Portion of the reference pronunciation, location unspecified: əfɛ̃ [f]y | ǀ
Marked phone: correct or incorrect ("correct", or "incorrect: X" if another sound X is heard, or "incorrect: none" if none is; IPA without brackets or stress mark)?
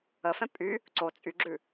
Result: incorrect: pʼ